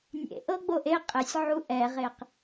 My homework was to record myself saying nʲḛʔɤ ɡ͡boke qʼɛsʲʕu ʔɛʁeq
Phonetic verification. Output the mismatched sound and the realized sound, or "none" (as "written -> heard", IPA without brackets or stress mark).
k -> ʔ